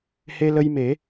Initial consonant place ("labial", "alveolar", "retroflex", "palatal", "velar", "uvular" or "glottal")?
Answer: glottal